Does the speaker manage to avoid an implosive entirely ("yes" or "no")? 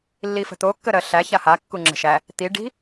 yes